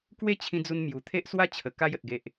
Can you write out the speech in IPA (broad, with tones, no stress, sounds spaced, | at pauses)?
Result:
k w e˥˧ t͡ɕʰ ĩ˧ d͡z u˧ n m j u˨˩ t̪ʰ e˦ ʔ s w a˦ t͡ɕʰ ə˨˩ k a˧ j ə˨ t̚ ɡ e˨ ʔ